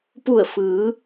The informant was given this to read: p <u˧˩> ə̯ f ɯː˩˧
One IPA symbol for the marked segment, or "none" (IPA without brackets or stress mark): u˧˩